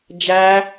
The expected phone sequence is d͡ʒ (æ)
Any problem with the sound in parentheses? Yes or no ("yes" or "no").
no